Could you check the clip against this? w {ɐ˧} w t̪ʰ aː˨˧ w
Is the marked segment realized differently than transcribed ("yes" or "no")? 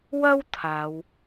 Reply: yes